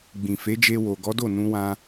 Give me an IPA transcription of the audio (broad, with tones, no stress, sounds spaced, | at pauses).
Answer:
ɡ͡b ĩ˨ f e˨˦ d͡ʒ e˧ w o˨ ɡ ɔ˨˦ d o˦˨ n ũ˧ w ã˧